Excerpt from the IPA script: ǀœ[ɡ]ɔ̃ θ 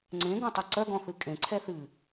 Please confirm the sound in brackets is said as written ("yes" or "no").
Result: yes